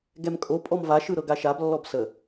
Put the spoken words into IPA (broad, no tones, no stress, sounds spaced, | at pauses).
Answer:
ɡ ɛ m kʼ o pʼ ɔ m v a ʃ ɯ ɾ ɤ ɡ a ʃ a b lː ɔ b s ə